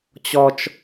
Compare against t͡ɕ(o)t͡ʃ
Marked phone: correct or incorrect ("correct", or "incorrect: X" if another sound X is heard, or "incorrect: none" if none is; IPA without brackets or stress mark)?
incorrect: ɔ